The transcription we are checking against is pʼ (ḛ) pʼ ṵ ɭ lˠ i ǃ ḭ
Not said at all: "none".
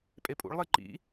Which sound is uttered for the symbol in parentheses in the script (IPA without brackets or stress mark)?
e